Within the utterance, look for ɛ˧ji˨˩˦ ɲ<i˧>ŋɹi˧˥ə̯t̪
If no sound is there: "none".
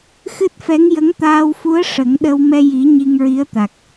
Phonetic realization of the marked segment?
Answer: i˧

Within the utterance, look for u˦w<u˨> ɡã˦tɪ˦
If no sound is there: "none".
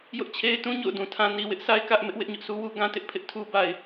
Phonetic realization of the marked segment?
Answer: u˦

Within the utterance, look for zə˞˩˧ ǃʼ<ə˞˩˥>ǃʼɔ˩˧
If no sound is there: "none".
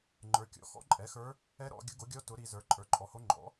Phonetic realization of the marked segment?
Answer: ə˞˩˧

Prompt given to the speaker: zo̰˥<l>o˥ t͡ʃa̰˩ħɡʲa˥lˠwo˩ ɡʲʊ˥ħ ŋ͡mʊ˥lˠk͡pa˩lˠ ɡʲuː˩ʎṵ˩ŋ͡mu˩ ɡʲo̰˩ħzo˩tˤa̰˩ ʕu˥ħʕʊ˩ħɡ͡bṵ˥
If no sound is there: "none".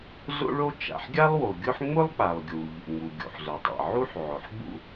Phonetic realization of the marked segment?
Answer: ɭ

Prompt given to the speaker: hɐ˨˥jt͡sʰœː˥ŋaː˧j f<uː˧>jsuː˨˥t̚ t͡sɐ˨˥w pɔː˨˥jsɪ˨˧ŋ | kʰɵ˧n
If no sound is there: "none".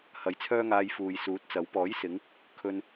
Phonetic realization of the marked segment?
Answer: uː˨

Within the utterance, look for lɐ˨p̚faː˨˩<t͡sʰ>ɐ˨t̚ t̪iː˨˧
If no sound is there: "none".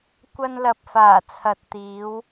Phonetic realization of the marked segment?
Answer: t͡sʰ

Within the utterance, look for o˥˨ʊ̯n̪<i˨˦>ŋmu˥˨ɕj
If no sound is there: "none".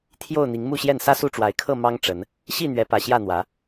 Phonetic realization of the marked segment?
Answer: i˨˦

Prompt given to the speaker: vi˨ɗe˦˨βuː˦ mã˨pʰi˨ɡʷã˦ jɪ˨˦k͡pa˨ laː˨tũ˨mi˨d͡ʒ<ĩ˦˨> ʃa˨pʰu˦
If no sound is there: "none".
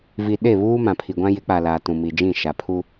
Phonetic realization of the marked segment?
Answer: ĩ˦˨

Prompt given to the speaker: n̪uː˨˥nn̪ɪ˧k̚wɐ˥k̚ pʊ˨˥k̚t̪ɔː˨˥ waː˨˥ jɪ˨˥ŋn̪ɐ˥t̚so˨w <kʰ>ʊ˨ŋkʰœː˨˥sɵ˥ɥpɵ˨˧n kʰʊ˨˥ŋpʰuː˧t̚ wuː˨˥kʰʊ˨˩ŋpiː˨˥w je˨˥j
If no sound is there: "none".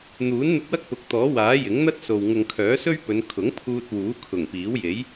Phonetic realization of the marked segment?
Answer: ŋ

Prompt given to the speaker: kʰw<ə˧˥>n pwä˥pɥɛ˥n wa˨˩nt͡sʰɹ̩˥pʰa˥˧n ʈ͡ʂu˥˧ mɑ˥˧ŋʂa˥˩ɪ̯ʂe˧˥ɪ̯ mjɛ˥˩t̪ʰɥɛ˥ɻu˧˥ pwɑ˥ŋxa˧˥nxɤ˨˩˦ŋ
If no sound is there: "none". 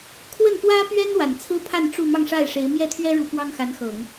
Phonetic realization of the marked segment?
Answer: ə˥˩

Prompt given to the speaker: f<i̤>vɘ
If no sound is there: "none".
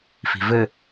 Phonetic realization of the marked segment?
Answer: i̤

